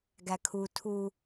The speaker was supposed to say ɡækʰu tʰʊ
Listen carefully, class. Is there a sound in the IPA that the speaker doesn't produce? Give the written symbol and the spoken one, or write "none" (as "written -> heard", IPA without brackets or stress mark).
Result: ʊ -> u